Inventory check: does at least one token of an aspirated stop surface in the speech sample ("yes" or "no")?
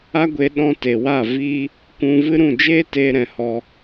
no